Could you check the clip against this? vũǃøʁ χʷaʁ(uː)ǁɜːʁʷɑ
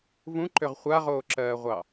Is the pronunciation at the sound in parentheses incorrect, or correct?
incorrect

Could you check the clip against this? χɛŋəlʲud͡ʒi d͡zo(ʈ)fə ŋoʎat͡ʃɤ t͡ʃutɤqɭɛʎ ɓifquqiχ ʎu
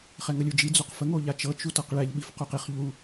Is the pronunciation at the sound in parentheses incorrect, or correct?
incorrect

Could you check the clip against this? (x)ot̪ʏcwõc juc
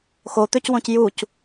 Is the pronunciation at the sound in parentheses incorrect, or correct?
correct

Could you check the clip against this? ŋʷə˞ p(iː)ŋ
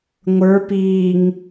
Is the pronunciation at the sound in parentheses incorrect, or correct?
correct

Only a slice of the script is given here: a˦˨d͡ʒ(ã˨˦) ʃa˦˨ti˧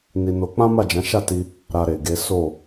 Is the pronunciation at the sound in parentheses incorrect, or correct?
correct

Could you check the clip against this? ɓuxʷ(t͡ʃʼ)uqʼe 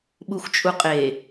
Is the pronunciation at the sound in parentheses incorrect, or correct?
correct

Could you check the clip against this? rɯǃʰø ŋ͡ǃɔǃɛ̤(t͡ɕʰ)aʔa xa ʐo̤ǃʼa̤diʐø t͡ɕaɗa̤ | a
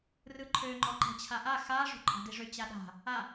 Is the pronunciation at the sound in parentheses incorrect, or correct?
correct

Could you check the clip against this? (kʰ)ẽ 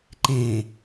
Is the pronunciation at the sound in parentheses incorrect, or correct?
incorrect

